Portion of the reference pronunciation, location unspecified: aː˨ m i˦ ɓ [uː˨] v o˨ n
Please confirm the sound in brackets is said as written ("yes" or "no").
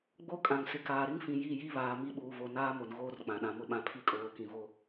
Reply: yes